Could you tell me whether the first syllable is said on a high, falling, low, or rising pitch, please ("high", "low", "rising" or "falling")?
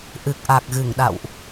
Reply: low